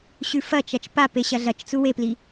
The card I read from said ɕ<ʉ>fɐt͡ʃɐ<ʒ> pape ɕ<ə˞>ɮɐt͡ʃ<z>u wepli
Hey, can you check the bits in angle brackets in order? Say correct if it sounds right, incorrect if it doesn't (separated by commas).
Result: correct, incorrect, incorrect, incorrect